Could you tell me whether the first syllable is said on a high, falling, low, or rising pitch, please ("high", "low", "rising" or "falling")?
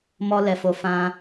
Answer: high